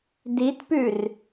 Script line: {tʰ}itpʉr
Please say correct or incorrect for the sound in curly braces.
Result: incorrect